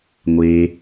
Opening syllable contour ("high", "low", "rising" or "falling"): low